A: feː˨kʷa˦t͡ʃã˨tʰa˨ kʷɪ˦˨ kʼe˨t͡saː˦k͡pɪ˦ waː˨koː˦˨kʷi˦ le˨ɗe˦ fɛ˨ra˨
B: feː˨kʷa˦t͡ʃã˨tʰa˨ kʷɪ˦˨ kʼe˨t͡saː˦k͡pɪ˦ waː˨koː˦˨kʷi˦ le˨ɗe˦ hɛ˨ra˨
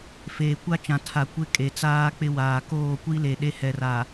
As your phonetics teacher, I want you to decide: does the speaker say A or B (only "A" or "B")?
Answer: B